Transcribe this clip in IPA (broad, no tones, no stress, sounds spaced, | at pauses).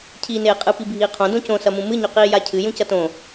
cʰ iː n eː qʼ ɨ p i bʱ iː qʰ õ d õ c õ s ɐ m ũ m ɨ ɲ ɵ q iː j a cʰ ɨ j ũ c ɐ t õ